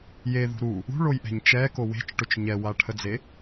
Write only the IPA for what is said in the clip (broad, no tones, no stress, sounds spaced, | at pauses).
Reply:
j e ð ṳ ɾ u | ṳ ɭ o j ʔ ɛ̤ ɲ t͡ʃ ɛ k o w e̤ t͡ʃ ʈ ɵ t͡ʃ ɲ ɛ w a ʈʰ ə d͡z e